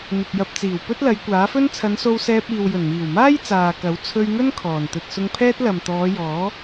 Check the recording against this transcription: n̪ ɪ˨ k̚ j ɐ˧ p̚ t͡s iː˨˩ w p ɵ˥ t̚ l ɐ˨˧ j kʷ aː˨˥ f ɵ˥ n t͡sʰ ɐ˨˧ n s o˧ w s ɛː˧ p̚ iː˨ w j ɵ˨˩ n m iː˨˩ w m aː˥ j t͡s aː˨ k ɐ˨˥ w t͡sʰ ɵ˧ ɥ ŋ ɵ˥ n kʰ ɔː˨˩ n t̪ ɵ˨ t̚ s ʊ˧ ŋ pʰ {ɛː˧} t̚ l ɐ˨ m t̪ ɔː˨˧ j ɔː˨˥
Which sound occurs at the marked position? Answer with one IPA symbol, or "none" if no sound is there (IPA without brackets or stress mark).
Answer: ɛː˥